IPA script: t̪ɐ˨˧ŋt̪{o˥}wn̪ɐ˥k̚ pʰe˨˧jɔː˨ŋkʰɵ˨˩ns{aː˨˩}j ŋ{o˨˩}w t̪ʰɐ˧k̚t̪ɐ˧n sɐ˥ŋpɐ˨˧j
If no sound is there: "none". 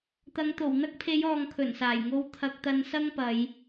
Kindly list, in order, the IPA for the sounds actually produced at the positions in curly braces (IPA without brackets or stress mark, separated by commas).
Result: o˨˩, aː˨˩, o˧